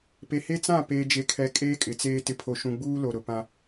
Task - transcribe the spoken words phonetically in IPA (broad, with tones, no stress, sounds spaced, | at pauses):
p e˨ h e˦ t͡s ã˦˨ p eː˨ d͡ʒ e˨ kʰ ɛ˨ kʼ eː˦ kʼ ɪ˨ t͡s eː˦ t ɪ˨ pʰ o˨ ʃ ũ˨ ɡ͡b uː˦ l o˨ ɾ ʊ˨ p ã˦